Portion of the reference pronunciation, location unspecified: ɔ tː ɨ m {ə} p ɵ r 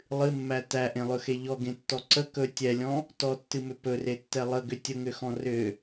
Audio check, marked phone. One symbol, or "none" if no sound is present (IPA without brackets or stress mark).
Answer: ʏ